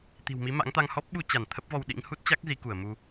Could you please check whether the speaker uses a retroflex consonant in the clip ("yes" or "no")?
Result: no